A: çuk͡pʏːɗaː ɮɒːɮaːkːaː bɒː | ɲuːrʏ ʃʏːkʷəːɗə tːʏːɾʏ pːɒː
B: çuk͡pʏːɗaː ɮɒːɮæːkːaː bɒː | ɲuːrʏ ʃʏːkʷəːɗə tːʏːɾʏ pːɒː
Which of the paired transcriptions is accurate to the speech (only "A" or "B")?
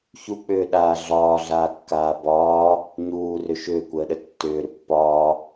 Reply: A